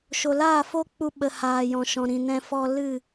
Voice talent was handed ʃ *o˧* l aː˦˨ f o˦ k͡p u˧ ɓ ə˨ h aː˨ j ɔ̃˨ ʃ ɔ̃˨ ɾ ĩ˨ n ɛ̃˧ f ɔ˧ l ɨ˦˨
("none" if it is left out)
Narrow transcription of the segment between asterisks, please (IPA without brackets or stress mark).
o˨